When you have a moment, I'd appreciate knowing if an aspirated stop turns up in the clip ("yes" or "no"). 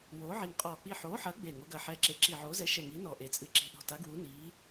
no